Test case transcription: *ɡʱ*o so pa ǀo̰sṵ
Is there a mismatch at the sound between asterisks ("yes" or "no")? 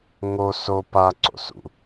yes